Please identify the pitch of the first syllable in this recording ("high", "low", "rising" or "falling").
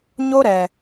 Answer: high